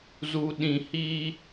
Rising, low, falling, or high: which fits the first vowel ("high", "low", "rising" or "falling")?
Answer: low